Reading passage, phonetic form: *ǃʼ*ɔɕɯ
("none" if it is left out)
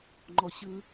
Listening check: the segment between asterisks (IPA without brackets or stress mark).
ŋ͡ǃ